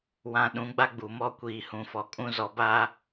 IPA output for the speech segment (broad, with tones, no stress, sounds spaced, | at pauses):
w ã˨ ɗ ũ˨˦ ɡ͡b a˦ ɡ͡b u˨ m ɔ˦ kʷ iː˨ h ũ˨ f ɔ˨ kʼ ũ˦ z ɔ˨ b a˦